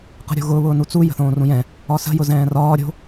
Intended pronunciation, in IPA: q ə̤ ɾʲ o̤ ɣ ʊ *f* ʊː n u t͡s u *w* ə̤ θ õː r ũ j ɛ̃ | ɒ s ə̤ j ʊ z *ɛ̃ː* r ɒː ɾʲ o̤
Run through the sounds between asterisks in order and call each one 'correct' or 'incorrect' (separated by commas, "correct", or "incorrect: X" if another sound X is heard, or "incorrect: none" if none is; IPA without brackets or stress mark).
incorrect: β, incorrect: j, correct